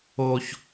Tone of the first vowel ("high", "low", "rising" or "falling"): high